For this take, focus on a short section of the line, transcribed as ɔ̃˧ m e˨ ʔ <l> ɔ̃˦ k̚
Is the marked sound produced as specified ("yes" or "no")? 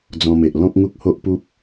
yes